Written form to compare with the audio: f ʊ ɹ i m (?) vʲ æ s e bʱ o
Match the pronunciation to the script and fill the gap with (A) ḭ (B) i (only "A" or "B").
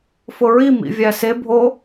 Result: A